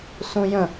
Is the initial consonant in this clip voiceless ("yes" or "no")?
yes